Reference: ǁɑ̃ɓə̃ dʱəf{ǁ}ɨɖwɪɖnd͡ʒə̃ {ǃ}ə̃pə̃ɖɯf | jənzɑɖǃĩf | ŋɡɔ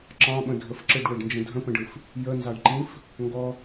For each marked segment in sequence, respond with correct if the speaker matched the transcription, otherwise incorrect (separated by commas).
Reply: correct, incorrect